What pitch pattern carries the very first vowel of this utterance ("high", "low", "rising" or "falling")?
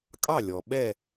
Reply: falling